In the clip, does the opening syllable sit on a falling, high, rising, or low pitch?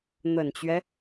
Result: low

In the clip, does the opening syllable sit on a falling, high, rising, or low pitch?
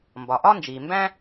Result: low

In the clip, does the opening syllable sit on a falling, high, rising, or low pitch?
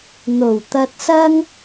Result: low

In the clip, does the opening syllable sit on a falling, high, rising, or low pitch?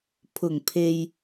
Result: low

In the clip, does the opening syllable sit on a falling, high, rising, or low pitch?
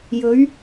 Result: rising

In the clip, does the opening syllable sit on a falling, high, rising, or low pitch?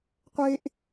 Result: high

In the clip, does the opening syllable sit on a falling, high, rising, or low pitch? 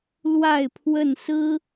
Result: falling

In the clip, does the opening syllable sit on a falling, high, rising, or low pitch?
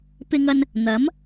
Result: high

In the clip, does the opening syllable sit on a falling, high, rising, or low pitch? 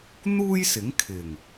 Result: high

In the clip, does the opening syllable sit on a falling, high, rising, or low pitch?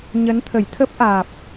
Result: rising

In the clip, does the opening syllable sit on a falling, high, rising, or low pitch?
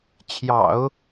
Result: low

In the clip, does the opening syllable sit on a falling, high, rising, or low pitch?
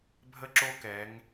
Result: high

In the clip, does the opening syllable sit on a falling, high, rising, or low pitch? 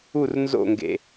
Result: falling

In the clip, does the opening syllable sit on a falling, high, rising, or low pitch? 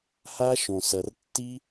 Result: high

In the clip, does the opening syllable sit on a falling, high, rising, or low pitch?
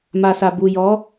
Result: low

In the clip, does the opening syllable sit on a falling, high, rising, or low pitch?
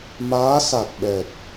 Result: rising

